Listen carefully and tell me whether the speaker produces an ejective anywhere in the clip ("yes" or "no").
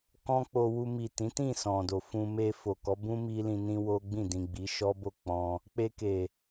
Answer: no